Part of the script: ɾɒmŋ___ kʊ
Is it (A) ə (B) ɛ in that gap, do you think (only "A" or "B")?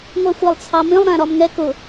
B